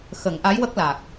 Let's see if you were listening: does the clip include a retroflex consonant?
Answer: no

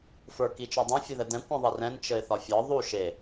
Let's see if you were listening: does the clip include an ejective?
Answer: no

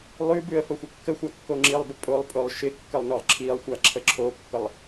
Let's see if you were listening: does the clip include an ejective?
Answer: yes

